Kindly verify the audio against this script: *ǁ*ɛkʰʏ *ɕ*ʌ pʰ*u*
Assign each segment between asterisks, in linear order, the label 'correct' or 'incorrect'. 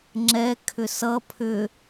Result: incorrect, incorrect, incorrect

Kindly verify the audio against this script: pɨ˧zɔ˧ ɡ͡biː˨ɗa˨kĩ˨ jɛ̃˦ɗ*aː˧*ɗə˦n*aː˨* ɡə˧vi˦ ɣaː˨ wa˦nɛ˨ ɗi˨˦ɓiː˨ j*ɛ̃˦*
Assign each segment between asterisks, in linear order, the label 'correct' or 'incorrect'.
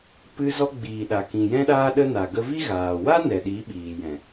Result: incorrect, incorrect, incorrect

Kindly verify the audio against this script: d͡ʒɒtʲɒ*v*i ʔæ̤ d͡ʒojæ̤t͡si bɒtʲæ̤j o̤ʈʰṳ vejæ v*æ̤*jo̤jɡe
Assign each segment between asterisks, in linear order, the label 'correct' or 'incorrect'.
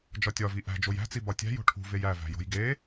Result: correct, correct

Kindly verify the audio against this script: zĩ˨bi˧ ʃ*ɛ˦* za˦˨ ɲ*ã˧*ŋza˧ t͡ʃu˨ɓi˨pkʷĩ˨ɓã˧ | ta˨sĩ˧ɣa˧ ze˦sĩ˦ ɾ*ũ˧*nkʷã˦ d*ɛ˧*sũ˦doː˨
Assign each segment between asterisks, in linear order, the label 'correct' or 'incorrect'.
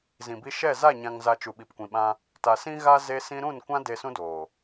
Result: incorrect, correct, incorrect, incorrect

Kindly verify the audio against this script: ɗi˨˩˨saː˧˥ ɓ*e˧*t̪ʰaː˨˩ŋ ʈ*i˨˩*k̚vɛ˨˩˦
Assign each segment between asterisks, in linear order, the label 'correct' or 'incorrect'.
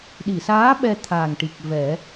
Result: incorrect, correct

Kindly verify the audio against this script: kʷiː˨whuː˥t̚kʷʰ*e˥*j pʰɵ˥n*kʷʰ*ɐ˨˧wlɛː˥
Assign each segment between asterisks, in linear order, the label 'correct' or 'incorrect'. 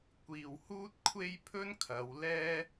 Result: correct, incorrect

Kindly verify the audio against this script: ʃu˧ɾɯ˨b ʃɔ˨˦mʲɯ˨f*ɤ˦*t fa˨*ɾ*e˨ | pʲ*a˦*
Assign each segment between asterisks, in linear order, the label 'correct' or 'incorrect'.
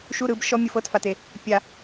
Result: correct, incorrect, incorrect

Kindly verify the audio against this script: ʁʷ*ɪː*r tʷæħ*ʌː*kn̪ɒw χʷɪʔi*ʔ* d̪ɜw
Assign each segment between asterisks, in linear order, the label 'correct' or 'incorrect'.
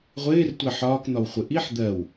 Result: correct, incorrect, incorrect

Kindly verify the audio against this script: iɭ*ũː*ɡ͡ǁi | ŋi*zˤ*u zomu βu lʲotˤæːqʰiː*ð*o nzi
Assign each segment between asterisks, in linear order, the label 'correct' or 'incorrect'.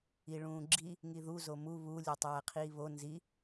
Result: correct, incorrect, incorrect

